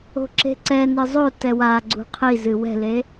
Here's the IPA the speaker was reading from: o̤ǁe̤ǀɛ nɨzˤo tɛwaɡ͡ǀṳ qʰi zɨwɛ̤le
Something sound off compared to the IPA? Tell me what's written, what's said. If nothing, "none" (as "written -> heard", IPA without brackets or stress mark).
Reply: none